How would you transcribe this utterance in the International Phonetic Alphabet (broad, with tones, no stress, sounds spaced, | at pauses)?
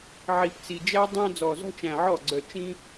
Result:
ʕ i˨˩˦ p t͡s i˨˩ d͡ʒ æ˥ dˤ æ̃˥ d͡z ɔ˨˩ z ɔ̤˥ t͡ʃ æ̃˨˩ ʕ ɔ˥˩ ɡ͡ǀ œ˨˩ t͡ʃ ĩ˥